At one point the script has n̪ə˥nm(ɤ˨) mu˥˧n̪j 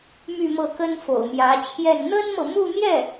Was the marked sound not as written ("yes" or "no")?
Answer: no